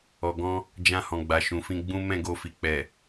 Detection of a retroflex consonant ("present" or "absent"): absent